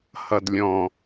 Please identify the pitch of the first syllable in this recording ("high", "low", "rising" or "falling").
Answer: low